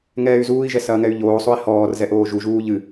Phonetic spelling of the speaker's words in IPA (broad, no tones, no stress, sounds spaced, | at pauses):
ŋ ɛː y̯ z uː i̯ ʒ ɛ s ɐː ŋ ɛ y̯ ʎ oː sˤ o i̯ h ɔː r z ɛ ʔ oː ʒ u ʒ uː ʎ ɨ